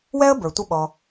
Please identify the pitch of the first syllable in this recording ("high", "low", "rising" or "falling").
high